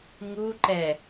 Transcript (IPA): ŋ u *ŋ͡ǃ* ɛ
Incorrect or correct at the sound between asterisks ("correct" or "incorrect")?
incorrect